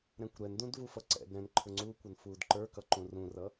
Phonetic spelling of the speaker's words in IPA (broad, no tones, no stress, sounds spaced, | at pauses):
ɾ ɛ̃ kʷ ɾ ɛ n d ũ d v u f ʌ ǀ ɛ̰ d ɾ ɛ̃ n ǃʰ ʊ ŋ͡ǀ uː kʷ ʌ n f uː d ǃ ə˞ k ʌ ǃ ũ r ũ r ʌ